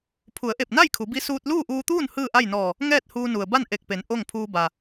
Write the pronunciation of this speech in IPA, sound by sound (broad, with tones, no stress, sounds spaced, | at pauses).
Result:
pʰ u˩˧ ə̯ ʔ e˧˩ p̚ n a˥˨ j kʰ u˩˧ b i˧˥ s uː˧ t̚ l uː˥˨ ʔ uː˧ t̪ uː˥˨ n h ɯː˥˨ ʔ a˥˨ j n ɔː˧˩ | ŋ ɛː˥˨ t̚ h uː˧ n u˩ ə̯ b a˥˨ n ʔ e˧˩ k̚ p e˩˧ n ʔ o˥˨ ŋ pʰ uː˧ b a˩